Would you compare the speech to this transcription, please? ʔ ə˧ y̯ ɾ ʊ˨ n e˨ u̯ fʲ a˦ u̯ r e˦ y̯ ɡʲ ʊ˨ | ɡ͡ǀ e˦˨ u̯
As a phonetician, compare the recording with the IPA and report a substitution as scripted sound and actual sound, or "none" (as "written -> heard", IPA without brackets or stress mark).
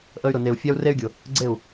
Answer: none